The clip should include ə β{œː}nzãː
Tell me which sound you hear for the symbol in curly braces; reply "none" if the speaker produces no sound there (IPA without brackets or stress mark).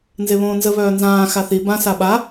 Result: œː